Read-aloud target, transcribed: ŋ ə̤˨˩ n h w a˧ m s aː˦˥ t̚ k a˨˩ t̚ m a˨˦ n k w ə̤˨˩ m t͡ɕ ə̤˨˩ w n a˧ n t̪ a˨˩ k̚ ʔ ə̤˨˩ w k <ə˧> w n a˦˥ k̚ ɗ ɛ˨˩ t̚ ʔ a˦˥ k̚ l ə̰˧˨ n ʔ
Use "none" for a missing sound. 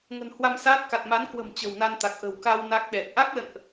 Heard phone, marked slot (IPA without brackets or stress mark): a˧